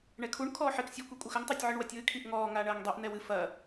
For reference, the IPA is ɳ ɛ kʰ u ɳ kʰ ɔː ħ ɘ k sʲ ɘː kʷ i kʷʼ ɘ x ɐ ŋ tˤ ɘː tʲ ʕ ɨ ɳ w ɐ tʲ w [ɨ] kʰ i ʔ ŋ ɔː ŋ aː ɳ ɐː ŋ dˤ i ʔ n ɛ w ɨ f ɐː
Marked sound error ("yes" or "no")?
no